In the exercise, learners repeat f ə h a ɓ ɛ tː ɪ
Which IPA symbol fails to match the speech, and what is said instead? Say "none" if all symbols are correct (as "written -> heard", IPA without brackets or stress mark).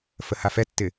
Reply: ɓ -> f